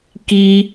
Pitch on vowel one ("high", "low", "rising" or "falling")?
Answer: high